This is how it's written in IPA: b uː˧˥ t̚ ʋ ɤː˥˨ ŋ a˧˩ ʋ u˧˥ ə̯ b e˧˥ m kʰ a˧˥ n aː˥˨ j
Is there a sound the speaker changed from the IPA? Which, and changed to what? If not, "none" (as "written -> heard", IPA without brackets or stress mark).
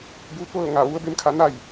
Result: aː˥˨ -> a˥˨